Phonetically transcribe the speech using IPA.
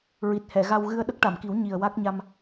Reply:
ɹi˨˩t̚hɛ˨˩˨ɣa˧wɣɨ˧ə̯ ɗə˦˥k̚ʈa˨˩˨mki˨˩˦w ɲi˨˩ə̯wa˦˥k̚ɲa˧m

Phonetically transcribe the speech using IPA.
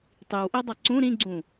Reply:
tˤiwʔidˤʌ ǀũ ɾĩɡ͡ǀũ

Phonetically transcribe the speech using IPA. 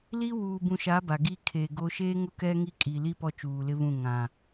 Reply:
li˦ wuː˨bũ˨ʃa˨˦ ba˨ɡi˦ kʰeː˨ɡo˦ ʃeː˦ ŋʊ˦˨kɛ˦ŋi˦˨ kʼi˨li˦ pɔ˦t͡ʃuː˨lɪ˦βũ˦˨ ŋã˨

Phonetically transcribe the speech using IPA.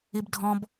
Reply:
ibdʱɔ̃b

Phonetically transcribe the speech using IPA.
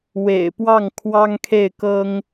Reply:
wḛ˨˩ɪ̯pwɑ˥˩ŋ kʰwɑ˥ŋkʰe˥˩ɪ̯kɤ˥ŋ

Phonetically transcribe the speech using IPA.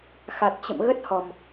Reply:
xa˨˩t̚t͡ɕə̰˧˨m ɣə˦˥t̚hɔ˨˩m

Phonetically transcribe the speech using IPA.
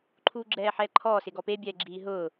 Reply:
ǃʰuːɡ͡ǁɛːħɛːǃʰɔː sɪɡɔpe bʲɛːɡ͡ǁiːɦʊː

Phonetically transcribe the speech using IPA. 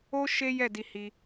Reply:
o˦ ʃe˦jɛ˦˨ di˧ hi˦

